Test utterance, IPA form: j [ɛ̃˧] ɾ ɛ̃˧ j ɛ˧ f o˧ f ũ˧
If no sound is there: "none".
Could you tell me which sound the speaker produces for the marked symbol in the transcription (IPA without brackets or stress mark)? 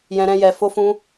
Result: ɛ̃˧